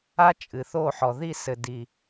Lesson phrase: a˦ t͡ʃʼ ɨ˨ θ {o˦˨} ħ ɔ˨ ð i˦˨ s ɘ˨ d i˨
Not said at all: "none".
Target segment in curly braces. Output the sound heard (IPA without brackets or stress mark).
o˦˨